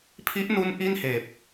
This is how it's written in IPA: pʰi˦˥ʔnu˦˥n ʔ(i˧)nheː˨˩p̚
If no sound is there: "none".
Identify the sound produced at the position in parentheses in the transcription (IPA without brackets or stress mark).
i˥˩